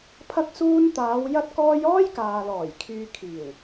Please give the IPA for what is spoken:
pʰ ɐ˧ k̚ s uː˧ n t̪ aː˨˧ w j ɐ˥ t̚ k ɔː˥ j ɔː˥ j k aː˨ l ɔː˨˩ j kʰ yː˨ kʰ iː˨˩ w

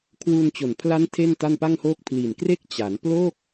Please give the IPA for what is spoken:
kʰ w uː˧ n t͡ɕ o˨˩ n pʰ l a˦˥ n tʰ e˥˩ n t a˥˩ n p a˥˩ ŋ h oː˥˩ k̚ pʰ l i˨˩ n k r e˥˩ k̚ t͡ɕ a˩˦ n p l o˥˩ k̚

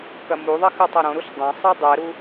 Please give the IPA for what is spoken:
k ɐ m u ðˤ ɐ x ɨ tˤ ɐ ɾ õ ɾ u ɬ dˤ ɐ̃ sˤ ɨ dˤ ɛ ɾ u

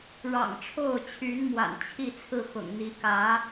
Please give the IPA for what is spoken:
ɻ ɑ̰˨˩ ŋ ʈ͡ʂʰ o˥˩ ʊ̯ t͡ɕʰ y˧˥ n m w a̰˨˩ n t͡ɕʰ i˥˧ t͡sʰ ɹ̩˥˩ x ʊ̰˨˩ ŋ n̪ i˧˥ k ä˧˥

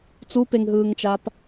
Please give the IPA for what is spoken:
t͡s u p e ŋ ɦ ɯː ŋ t͡ʃ a p

